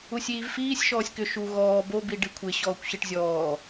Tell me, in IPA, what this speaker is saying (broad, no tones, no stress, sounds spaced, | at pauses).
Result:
u sʲ iː v f iː sʲ ʃ ɔː sʲ k ʏ ʃ u ɣ ɔː b o b i ɖ i kʷʰ ɪ ɕ ɔː kʷ ɕ i ʈ zʲ ɔː